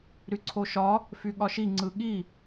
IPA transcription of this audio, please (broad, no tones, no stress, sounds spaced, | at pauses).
ɾ y ǀʰ o ʃ ɒ | f y ɠ ɒ ʃ i ŋ͡ǀ ɯ ɠ i